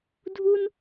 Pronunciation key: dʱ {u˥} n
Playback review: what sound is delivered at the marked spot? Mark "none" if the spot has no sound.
u˥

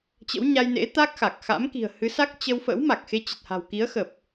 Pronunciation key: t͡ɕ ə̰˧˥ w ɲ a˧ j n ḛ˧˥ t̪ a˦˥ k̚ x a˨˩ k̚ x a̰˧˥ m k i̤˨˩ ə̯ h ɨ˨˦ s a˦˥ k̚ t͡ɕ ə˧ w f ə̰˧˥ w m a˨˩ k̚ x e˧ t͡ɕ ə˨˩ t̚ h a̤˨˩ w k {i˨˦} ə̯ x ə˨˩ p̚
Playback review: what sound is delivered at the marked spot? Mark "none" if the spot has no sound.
i˨˦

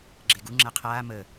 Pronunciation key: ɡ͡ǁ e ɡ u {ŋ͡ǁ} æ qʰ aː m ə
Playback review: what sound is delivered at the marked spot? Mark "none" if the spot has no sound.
ŋ͡ǁ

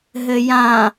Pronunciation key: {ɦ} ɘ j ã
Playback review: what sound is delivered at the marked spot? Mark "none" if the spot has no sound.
ɦ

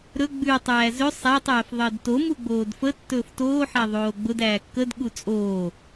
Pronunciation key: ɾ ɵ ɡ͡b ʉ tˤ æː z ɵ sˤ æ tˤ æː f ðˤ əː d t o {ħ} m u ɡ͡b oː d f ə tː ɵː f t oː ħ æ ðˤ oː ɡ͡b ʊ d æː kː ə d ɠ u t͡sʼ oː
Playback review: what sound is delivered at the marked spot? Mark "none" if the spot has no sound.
none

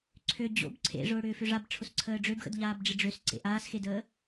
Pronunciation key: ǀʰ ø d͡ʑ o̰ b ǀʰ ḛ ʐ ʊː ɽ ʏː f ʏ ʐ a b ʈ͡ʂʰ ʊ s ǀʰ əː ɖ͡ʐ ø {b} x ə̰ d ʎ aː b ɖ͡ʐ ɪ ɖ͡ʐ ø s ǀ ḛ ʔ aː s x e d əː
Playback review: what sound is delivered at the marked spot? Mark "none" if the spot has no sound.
b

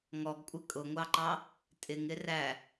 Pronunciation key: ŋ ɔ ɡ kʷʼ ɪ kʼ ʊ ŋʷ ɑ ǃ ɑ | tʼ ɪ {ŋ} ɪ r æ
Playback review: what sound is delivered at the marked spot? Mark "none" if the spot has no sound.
ŋ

